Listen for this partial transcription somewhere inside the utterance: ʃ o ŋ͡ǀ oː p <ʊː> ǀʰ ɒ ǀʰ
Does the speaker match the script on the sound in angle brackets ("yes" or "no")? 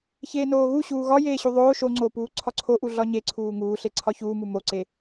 no